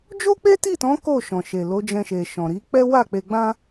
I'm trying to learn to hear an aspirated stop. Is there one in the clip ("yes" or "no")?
no